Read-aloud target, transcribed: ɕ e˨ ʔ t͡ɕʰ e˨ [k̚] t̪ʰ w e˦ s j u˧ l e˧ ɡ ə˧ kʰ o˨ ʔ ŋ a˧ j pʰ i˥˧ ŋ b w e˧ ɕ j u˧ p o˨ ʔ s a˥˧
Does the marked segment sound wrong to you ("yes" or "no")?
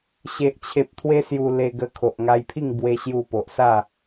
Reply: yes